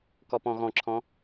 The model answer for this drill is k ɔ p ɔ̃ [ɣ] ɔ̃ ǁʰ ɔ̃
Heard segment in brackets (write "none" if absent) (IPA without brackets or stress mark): ɣ